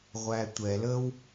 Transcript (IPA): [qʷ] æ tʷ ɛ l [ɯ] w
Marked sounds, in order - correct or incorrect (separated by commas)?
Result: incorrect, incorrect